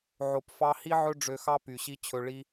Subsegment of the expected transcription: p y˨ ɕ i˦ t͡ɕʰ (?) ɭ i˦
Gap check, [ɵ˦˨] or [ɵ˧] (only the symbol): ɵ˧